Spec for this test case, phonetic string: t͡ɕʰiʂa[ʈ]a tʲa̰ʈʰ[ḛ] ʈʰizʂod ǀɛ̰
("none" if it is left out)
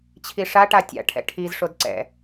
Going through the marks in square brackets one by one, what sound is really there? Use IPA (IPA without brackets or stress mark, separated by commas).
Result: ʈ, ɛ̰